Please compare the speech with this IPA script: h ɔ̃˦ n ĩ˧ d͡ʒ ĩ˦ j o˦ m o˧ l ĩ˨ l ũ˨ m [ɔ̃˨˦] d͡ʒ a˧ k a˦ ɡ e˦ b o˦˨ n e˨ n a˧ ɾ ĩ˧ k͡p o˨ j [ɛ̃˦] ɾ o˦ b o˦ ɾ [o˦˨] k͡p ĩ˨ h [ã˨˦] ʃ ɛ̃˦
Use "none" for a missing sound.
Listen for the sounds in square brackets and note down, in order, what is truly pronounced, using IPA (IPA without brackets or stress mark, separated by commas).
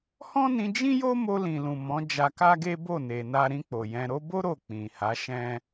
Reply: ɔ̃˨˦, ɛ̃˧, o˦˨, a˨˦